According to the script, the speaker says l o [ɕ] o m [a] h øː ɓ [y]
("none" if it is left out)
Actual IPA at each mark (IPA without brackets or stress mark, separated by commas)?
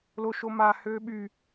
ʃ, a, y